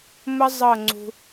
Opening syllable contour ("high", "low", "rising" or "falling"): high